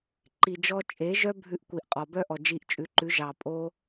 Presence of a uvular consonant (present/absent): present